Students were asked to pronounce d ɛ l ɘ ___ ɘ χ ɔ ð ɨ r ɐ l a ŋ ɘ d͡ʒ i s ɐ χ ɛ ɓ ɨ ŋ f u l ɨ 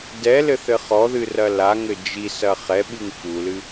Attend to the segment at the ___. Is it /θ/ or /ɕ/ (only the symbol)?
θ